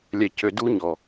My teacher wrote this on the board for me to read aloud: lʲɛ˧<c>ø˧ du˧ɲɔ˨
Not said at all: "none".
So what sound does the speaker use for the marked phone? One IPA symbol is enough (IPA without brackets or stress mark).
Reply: c